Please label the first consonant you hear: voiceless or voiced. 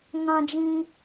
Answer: voiced